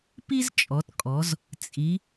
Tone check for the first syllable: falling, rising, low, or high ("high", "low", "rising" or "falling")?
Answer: high